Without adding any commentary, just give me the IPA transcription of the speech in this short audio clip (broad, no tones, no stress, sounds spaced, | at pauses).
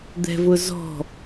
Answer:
d̪ ɛ̤ v ʊ z ɔ̤